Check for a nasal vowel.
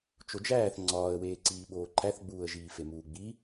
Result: absent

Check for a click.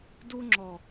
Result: present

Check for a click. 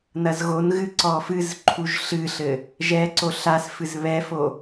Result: present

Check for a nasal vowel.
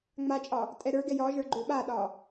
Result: absent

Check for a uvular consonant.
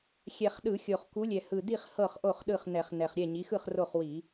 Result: present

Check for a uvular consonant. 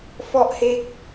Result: absent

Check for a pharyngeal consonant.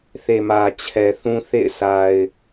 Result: absent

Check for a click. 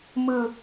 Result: absent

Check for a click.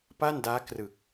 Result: absent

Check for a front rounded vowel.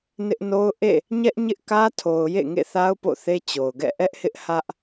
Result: absent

